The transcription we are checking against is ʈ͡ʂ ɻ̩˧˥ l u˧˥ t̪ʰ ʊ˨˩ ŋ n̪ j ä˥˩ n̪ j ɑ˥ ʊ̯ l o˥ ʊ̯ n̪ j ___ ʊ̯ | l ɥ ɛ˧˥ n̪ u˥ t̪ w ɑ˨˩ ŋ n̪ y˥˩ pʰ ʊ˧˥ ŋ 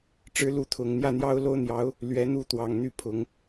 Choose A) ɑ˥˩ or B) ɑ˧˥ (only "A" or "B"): B